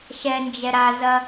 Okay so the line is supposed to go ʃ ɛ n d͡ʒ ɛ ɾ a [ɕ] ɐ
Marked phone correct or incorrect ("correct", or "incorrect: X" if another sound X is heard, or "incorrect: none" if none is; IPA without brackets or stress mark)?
incorrect: z